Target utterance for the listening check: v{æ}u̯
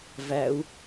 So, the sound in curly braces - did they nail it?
yes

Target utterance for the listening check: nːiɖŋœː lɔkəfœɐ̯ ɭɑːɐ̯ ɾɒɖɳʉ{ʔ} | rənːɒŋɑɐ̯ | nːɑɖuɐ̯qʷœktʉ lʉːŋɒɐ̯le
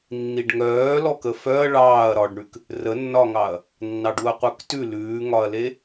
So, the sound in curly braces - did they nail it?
no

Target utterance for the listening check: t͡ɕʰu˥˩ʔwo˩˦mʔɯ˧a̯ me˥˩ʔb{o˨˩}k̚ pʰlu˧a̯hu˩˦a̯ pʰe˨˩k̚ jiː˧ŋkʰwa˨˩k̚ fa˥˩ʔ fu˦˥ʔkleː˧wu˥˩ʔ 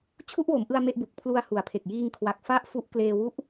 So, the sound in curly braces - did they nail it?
no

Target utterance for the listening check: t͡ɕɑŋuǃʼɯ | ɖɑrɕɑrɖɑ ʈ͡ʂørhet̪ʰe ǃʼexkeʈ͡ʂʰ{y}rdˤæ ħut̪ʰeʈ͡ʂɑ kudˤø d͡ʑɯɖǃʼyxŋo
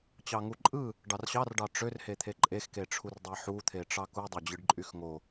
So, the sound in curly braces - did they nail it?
no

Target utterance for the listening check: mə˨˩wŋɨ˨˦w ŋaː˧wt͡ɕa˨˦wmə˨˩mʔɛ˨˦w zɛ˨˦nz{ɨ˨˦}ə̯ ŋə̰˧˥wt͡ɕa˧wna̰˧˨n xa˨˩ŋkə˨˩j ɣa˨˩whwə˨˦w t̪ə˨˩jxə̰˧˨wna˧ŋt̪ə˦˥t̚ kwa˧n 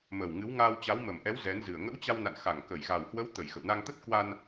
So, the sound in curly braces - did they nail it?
no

